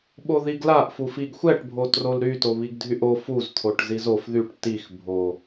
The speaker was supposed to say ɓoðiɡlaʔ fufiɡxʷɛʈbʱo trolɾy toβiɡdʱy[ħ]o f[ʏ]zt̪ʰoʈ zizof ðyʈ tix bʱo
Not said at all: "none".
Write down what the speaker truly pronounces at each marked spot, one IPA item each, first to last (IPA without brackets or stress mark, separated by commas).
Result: ʔ, u